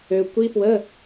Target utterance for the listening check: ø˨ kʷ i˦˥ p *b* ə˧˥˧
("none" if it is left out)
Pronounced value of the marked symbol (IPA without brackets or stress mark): w